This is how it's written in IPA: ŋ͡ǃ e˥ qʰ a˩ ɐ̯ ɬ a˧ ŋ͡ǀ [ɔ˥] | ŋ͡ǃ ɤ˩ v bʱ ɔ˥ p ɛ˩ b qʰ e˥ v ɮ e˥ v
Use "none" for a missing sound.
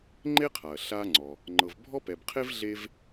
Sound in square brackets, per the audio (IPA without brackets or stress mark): ɔ˩